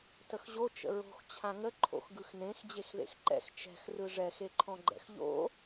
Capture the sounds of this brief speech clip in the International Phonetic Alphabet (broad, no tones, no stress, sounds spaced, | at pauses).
t ə x ʑ o t͡ʃ ə̰ ɹ o̤ x t͡ɕʰ ã ŋ ə ǃʰ o̰ x ɡ ɯ x n ẽ x d͡ʑ e x ð ḛ x ǃ ɛ̰ x t͡ʃ ɛ̤ x r ɯ ʐ ɛ x e ǃʰ ɔ̃ ɡ͡ǃ ɛ̰ x ʎ o̰